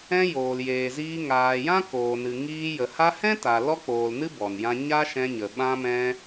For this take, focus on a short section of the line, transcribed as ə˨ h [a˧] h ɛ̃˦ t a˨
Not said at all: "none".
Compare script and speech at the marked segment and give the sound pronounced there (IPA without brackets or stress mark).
a˧